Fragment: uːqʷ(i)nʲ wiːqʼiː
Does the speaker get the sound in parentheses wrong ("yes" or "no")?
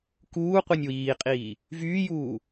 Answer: no